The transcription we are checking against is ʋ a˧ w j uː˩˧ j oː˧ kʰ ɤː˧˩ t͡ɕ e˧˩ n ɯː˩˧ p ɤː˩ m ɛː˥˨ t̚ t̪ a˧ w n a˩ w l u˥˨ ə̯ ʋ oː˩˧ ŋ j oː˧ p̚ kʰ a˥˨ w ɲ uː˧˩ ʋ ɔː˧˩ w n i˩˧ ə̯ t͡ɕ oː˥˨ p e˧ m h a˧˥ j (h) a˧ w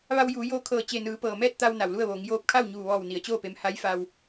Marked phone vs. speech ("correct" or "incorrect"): incorrect